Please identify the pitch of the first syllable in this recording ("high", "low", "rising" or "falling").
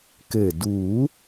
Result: low